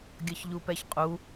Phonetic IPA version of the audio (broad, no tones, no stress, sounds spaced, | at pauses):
ɡʲ ʌ ç ʎ u p ɛ ç qʼ u